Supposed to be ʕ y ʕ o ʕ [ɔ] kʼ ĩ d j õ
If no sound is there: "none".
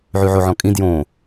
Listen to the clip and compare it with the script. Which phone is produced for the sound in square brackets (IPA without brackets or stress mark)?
ɔ̃